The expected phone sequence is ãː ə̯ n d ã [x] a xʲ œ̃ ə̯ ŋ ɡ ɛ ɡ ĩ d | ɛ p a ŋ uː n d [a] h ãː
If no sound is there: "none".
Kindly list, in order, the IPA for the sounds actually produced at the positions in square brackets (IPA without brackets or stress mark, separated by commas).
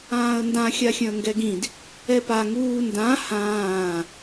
xʲ, ã